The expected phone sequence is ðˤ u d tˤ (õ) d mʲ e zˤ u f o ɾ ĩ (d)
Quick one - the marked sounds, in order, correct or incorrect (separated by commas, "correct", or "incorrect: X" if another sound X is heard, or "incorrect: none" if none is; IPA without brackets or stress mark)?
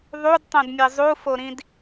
correct, correct